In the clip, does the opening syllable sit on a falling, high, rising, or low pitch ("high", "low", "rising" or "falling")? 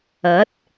rising